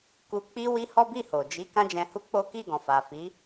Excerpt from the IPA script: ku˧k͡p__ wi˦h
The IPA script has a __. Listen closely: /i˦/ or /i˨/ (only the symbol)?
i˦